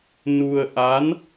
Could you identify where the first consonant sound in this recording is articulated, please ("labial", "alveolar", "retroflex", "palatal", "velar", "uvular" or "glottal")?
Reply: alveolar